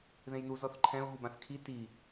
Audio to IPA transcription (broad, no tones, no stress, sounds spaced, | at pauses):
ð ẽ j n u z ɔ θ ǃʰ ɛ̃ ʊ̯ ɣ u b ã θ kʰ i t i